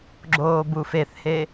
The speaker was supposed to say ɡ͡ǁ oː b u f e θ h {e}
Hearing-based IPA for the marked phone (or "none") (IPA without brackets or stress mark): e